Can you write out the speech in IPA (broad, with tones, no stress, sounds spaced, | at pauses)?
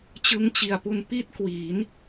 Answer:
t͡ɕ ɯ˦˥ ŋ t͡ɕ i˨˩ a̯ p u˧ n p i˥˩ t̚ k w iː˩˦ n